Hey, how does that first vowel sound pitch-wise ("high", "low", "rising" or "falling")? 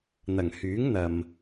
low